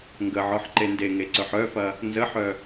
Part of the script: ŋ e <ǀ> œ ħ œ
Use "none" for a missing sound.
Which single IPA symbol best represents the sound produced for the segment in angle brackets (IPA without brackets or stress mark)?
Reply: ǀ